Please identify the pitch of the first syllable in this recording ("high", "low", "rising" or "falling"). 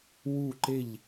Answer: falling